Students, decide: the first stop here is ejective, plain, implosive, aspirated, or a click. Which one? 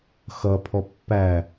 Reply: aspirated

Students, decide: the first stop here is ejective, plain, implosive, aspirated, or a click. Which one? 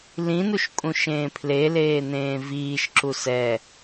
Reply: ejective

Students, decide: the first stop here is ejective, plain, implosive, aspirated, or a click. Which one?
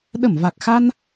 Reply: implosive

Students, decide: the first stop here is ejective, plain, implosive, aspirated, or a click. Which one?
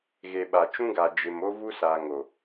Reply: implosive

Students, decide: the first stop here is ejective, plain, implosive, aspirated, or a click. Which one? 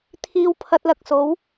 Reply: aspirated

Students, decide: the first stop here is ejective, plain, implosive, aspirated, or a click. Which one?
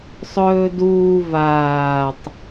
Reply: plain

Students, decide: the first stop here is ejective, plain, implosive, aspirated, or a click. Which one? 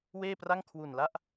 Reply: plain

